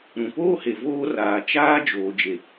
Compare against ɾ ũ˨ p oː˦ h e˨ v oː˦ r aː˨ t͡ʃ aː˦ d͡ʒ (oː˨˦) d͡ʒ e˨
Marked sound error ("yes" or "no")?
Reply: yes